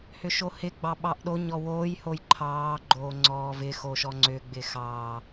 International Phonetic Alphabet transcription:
hʏʃohɪ ɡ͡bɑɓɑʔɗo ɲɔwoːj hojǃʰɑː ɡ͡ǃoːŋ͡ǀɔːvɪ xoʃɔŋ͡ǀʏ ɡ͡bɪxɑː

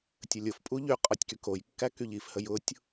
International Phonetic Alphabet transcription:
tʲəlʲʊfpʼu ʎy qʼɔtʲkykojkːæ kyʎifhəj ʊtʲ

